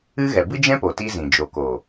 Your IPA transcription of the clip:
ɨ˦ ɣ ɛ˨ b ɨ˦ d͡ʒ ɛ̃˦ p o˨ t i˦ z ĩ˨ d͡ʒ o˨ k o˨

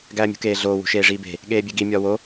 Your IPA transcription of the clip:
ɡ æː mʲ ṳ k eː ɮ oː w ṳ ʃ eː ʐ iː b e̤ | ɠ eː bʲ e ɡ i mʲ ɒː w o

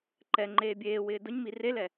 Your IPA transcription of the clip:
ǃ ɛ ŋ͡ǃ eː bʲ eː w ɪː d ʊ ɲ m i r e l ɛ

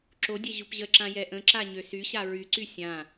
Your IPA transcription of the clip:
ǁ o dʲ ɛ ʑ u p ʑ ə ǁ ã j ɛ ʔ ə̃ ǁ a ɲ ø s y ɕ a ɹ y ǀ y sʲ ã

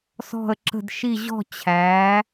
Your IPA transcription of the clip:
s ɔ̤˧˩ ə̯ ǁ ə̤˧˩ d ʃ i˧˩ ʑ ɔ̤˧˩ t͡ɕʰ æ˩˧

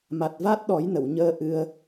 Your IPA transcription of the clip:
m a˨˩ t̚ v a˦˥ t̚ ɗ ɔ˨˩˦ j n ə˨˩˨ w ɲ əː˧ ʔ ɨ˧ ə̯

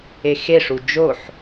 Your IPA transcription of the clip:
e x e ʂ u d͡ʒ o ħ

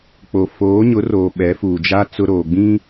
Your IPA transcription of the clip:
k͡p o˨ f oː˨˦ ɲ ʊ˨˦ r oː˨ ɓ ɛ˨˦ f uː˨ d͡ʒ a˦ t͡s ʊ˦ ɾ oː˨ ɡ͡b ĩ˦

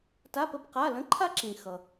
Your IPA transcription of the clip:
t a˧˥˧ p ə˦˨ b q a˧˥˧ l ə̃˧˥˧ ǃʰ a˥ ǁ ĩ˨˩ x ʌ˨˩

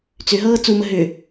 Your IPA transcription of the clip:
t͡s ʏ ɦ ɤː t͡s u m ə ɦ ʏ

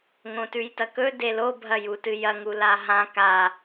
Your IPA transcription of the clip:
ŋ õ t ʉ j t ɐ k ɵ d e l o bʱ ɐ j u t ɨ j ɐ ŋ u l a ɦ ã k a

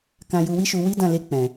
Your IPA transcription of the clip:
k ã˧ j u˧ w i˦ ʃ u˧ w i˦ d ã˦˨ l e˧ k͡p ɛ̃˨

